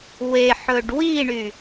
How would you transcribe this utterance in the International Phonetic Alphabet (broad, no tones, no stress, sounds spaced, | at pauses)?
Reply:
w e ħ ɵ ɖ w i ɳ y